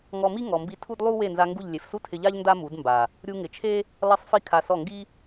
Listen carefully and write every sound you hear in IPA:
ŋ ɔ˧ m i˦ ŋ ɔ˧ m b i˦ tʰ u˦ d lˠ u˦ w e˦˨ n z a˧ ŋ ɡ u˦˨ ʎ lʲ e˨ f s u˦ tʰ ɪ˧ ʎ a˦ ʎ n d a˦ m u˨˦ d m b a˨ | ɾʲ u˧ ŋ ɪ˨ t͡ʃʰ e˦ | lˠ i˧ sˤ f i˧ kʰ a˨ s ɔ˦˨ ŋ ɡ i˦

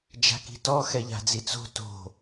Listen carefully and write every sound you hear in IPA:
d͡ʒ a̤ k i̤ t ɔ x ɛ ʎ a̤ d͡z i t͡s o̤ t o̤

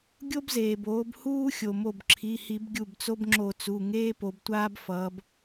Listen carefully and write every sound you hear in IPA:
ɡʲ o˦ b z eː˩ b oː˩˧ b h uː˦ xʲ o˩ m o˧˩ b ǁʰ i˩˧˩ h i˧˩˧ b ɡʲ u˧˩ b t͡s o˦ b ŋ͡ǁ o˧˩˧ t͡s u˩˧˩ ŋ eː˦ p o˩˧ b tʷ aː˦ b f ʌː˩˧ b

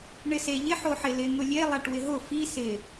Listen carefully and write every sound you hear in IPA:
ɳ ɪ s e ʎ ɪ ħ o ħ ɪ l ɪ ŋ ʊ lʲ e lˠ a ʈ w ɪ ɦ ʊ f i s ɪ

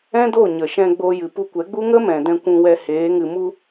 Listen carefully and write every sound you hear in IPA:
ɛ̃˦ d o˦˨ ɲ ə˨ ʃ ɛ̃˧ ɡ͡b o˧ j ɨ˨ p u˧ kʷ ɛ˨˦ ɡ͡b u˦ ŋ ə˦ m ɛ̃˨ d ɛ̃˧ kʷ ũ˧ w ɛ˧ h eː˨˦ ŋ ɨ˧ m u˦

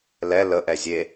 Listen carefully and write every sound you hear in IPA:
l ɛ l ə ʔ ɛ zʲ e

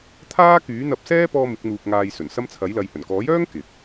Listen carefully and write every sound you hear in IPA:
t̪ʰ aː˥ k yː˨˥ n̪ ɐ˧ p̚ s ɛː˥ p ɔː˥ m ɪ˨˥ k̚ n̪ uː˧ k̚ ŋ aː˧ j s ɵ˨˩ n s ɐ˥ m t͡sʰ ɐ˨˥ j l ɐ˨ j h ɵ˨˩ n k ɔː˨˥ j œː˥ ŋ k ɪ˨ k̚

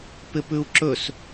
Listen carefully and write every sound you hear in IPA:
p ɪ p ʉ u̯ ǁ ɵ s

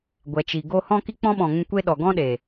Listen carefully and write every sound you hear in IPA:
ɡʷ ɛ˨ t͡ʃ i˨ ɡ o˦ h ɔ̃˦ k i˦ k͡p ɔ̃˦ ɓ ɔ̃˨ ŋ ũ˧ kʷ e˦ ɗ ɔ˨ ɡ ɔ̃˦ ɗ e˨

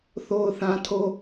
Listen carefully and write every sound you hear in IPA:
θ o˦ ʊ̯ θ ã˦ tʰ o˦

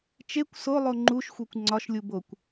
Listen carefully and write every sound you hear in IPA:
t͡ʃ e kʷ s o lˠ o ŋ͡ǃ u ʃ xʷ e kʷ ŋ͡ǀ ɒ ʃ lʲ u b o kʷ

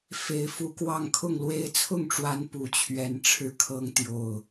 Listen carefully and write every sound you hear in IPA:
f e˨˩ ɪ̯ f u˧˥ k w ɑ˥˧ ŋ kʰ ʊ˥˩ ŋ l w e˥ ɪ̯ t͡sʰ ʊ˥˩ ŋ ʈ͡ʂ w a˧˥ n p u˧˥ t͡ɕʰ ɥ ɛ˥ n ʈ͡ʂʰ ɻ̩˥ kʰ ɤ˥ ŋ t̪ j o˥˩ ʊ̯

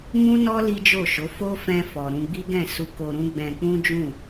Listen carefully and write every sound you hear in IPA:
m ũ˦ n ɔ˦ l i˦ d͡ʒ o˦˨ ʃ o˨˦ f o˦ f ɛ̃˧ f ɔ˨ ɾ ũ˧ ɡ͡b i˦ ɡ ɛ̃˦˨ s u˧ k o˧ ɾ ũ˦ ɡ͡b ɛ̃˧ k͡p ũ˦ d͡ʒ ũ˦˨

